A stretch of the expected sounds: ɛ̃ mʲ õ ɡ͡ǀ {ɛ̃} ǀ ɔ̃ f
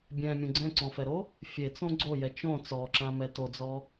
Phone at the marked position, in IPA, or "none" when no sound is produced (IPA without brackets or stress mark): ɛ̃